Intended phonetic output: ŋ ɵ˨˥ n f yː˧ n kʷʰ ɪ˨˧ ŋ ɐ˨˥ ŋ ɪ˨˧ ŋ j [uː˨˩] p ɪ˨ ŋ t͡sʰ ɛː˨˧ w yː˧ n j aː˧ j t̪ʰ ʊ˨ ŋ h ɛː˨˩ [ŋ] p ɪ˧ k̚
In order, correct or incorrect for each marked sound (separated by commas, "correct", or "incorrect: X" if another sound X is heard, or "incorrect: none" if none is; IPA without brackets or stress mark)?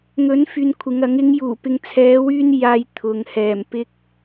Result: correct, incorrect: m